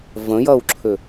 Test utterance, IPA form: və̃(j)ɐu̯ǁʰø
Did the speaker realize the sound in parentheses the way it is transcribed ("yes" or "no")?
yes